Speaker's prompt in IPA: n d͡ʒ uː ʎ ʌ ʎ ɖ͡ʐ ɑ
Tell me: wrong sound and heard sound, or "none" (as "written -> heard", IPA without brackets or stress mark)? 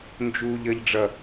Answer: ɑ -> ʌ